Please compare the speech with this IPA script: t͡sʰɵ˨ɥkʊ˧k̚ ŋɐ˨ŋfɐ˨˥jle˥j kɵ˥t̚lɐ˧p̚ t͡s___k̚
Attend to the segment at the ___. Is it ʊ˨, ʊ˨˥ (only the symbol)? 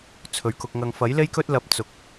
ʊ˨